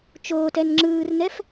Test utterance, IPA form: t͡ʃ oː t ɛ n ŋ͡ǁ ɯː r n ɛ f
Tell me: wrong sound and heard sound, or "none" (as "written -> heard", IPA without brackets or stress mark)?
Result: none